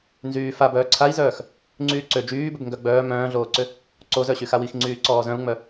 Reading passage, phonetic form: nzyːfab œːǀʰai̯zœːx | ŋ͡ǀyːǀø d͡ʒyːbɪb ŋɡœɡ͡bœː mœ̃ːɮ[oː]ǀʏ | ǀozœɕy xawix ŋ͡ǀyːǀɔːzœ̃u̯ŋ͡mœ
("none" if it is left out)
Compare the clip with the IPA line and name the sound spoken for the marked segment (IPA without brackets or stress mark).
oː